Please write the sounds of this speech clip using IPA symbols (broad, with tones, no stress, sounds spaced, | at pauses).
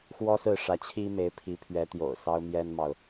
x w ɔ˥ s ɹ̩˥˩ ʂ ä˧˥ t͡ɕʰ i˥ m e˧˥ ɪ̯ pʰ i˧˥ pʰ ɥ ɛ˧˥ t̪ j o̰˨˩ ʊ̯ s ɑ˥ ʊ̯ m j ɛ˥ n m ɑ˨ ʊ̯